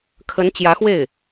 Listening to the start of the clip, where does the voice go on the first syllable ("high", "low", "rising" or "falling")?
rising